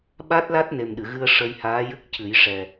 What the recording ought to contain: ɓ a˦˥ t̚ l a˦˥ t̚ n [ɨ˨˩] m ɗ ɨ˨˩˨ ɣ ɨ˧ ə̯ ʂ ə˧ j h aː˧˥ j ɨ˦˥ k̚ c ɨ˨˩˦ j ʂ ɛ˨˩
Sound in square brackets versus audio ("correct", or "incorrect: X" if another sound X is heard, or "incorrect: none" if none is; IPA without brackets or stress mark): incorrect: e˨˩